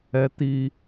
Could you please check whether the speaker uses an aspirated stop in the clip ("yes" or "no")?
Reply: no